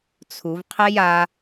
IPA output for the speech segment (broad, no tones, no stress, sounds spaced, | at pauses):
t͡sʰ u v qʰ ɛ j a